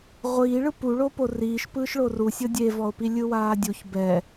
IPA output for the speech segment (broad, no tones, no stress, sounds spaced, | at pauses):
ʁʷ iː ɭ ɯ p u ɭ o p o r iː ʃ p ɯː ʃ ɭ o r u sʲ ɤ dʲ e v ɔ o̯ p i lʲ ɯ w aː dʲ u ç b ɛ